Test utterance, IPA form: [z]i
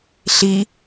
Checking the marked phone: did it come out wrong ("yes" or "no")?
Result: yes